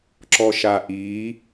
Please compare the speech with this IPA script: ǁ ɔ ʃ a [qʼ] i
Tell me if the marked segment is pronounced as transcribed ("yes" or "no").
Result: no